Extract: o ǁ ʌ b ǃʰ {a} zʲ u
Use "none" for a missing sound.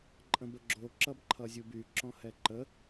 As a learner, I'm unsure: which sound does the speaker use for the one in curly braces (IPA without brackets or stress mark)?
ʌ